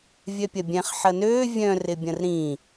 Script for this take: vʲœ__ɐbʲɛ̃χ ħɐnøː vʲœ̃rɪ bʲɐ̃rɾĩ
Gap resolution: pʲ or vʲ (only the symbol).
pʲ